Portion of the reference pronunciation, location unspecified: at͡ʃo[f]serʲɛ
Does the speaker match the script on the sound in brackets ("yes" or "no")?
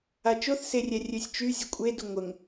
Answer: no